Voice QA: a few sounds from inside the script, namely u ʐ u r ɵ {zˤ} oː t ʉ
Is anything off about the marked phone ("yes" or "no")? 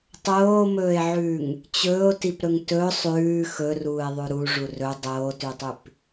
yes